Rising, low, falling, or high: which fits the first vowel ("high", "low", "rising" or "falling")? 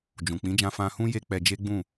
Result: low